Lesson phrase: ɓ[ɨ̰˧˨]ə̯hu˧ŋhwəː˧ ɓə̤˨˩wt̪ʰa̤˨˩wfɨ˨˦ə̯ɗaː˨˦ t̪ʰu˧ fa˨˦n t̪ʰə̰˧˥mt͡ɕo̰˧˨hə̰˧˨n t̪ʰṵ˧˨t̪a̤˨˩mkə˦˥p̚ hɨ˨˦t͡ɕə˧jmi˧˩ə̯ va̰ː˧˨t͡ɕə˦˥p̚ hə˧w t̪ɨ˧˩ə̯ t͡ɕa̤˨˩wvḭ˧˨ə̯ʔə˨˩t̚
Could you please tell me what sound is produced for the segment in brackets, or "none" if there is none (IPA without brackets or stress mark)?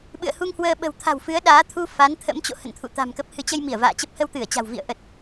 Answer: ɨ̰˧˨